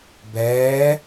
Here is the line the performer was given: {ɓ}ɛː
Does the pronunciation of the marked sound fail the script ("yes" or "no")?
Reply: yes